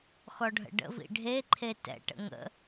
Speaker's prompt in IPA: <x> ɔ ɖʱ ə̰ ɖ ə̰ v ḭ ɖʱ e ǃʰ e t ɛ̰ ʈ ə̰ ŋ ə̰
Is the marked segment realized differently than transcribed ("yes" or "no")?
no